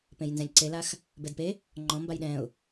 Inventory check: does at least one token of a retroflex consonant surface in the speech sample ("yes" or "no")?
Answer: no